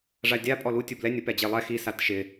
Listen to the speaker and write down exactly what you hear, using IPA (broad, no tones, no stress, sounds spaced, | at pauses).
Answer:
ʐ a dʲ a pʼ ɔ l u tʲ u b l ɛ nʲ ʊ p ɛ d͡ʑ e lˠ ɛ x i s a t ʃ ɪ